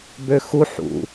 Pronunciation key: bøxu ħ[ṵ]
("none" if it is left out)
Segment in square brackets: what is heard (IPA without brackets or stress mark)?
ṵ